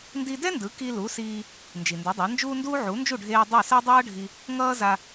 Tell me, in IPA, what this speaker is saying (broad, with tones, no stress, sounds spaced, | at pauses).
n d i˧ d ɛ˥ n d ɯ˩˥ k i˧ l u˩˥ s iː˧ | n d͡ʒ i˩ n d ɛ˩˥ dˤ a˩˥ n d͡ʒ uː˥ n d uː˥ ʕ u˩˥ n d͡ʒ u˥˩ ɖʱ eː˧ dˤ o˥˩ s ɛ˥ dˤ ʌː˥ ɖʱ i˧ | ŋ ʌː˥ z a˧